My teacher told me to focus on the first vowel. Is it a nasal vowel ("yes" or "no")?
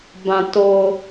yes